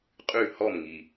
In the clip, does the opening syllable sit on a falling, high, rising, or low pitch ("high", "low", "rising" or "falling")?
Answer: falling